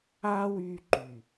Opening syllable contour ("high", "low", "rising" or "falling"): high